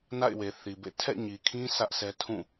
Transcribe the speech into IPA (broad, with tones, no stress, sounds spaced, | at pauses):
n a̰˦˨ ɪ̯ w e˨ θ i˨ b ḛ˦˨ tʰ ɛ̰˦˨ ɲ i˨ kʰ ĩ˦ s ä˦ ʔ sʰ ɛ˦ tʰ ũ˦˨